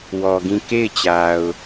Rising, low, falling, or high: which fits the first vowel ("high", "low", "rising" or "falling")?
low